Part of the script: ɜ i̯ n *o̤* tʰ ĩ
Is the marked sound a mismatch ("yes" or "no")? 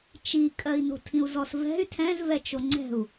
no